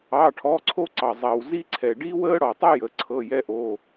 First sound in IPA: ɑ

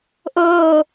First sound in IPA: ʔ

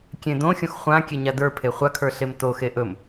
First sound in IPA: kʲ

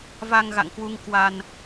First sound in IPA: v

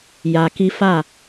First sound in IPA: j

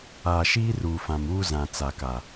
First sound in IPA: aː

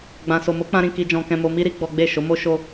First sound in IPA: ɡ͡b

